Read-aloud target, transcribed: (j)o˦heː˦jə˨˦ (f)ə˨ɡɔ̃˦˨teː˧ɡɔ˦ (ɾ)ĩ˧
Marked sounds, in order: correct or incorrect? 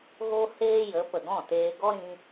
incorrect: ɣ, incorrect: p, correct

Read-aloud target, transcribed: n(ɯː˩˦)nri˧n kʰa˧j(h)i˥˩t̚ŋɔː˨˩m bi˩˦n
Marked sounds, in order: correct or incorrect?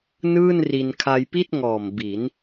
incorrect: ɯː˥˩, incorrect: p

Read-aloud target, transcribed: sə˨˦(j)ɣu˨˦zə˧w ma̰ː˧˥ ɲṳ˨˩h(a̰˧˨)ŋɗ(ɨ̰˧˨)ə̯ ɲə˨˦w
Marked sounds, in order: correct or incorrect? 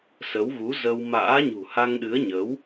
incorrect: w, incorrect: a˧, incorrect: ɨ˨˦

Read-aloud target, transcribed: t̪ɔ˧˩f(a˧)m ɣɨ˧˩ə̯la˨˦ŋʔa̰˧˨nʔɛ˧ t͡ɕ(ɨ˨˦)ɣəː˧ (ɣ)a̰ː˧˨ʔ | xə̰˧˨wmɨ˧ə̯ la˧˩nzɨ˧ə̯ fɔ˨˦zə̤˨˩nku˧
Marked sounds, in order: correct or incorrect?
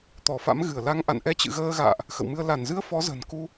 incorrect: a̰˧˥, incorrect: ɨ̰˧˨, correct

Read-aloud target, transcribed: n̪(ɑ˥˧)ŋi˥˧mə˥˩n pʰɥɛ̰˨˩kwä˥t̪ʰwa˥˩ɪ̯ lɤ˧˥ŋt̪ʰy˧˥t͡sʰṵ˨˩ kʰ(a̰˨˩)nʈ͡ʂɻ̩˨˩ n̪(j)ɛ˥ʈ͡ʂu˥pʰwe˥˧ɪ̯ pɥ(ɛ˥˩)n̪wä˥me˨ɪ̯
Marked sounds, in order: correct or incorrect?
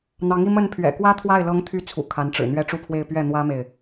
incorrect: ɑ˧˥, incorrect: a˧˥, incorrect: ɥ, correct

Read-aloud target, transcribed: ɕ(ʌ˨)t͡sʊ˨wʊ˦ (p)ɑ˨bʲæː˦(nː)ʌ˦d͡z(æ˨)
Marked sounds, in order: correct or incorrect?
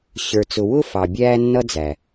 incorrect: ə˞˨, incorrect: f, correct, correct

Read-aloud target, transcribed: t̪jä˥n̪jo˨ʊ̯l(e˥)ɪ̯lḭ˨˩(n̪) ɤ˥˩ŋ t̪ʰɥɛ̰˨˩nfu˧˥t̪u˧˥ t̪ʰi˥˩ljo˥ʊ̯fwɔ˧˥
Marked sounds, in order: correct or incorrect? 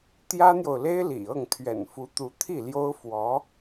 correct, incorrect: none

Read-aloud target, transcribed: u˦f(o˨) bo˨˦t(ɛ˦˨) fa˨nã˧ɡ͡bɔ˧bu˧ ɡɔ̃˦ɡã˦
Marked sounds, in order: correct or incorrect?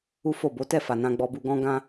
incorrect: o˦˨, correct

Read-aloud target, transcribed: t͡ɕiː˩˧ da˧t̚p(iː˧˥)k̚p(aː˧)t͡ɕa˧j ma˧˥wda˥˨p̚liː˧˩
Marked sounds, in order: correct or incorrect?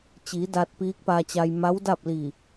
correct, correct

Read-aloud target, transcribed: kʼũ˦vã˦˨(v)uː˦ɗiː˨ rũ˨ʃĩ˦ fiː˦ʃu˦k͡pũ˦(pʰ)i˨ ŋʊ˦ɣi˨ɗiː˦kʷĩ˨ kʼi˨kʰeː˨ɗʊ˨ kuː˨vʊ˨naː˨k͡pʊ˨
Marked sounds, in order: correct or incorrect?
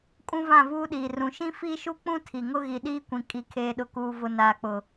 correct, incorrect: tʰ

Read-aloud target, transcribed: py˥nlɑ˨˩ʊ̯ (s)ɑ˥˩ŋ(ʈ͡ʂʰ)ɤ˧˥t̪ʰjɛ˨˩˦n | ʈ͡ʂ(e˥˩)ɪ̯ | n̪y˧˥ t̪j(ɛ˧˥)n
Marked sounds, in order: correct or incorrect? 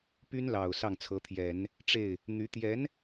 correct, incorrect: t͡sʰ, correct, correct

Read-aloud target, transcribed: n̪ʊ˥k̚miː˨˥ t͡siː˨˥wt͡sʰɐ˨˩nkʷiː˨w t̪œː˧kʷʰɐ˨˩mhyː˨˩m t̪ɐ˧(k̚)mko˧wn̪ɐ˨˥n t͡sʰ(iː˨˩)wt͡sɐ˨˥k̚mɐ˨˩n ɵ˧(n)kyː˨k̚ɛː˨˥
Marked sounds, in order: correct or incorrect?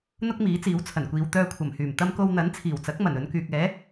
incorrect: none, correct, correct

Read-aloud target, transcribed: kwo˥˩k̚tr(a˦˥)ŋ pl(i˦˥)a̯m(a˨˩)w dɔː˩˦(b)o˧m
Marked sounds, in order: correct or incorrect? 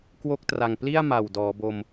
incorrect: a˨˩, incorrect: i˥˩, correct, correct

